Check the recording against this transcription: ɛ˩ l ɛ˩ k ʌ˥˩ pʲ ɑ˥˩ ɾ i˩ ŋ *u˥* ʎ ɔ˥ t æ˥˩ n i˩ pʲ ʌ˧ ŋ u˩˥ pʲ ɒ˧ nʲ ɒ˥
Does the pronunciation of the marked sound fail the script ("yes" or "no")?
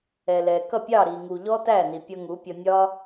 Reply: yes